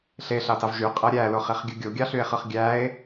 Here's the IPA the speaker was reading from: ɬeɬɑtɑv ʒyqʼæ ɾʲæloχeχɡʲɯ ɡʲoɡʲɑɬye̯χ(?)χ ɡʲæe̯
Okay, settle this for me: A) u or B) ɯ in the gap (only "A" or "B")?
B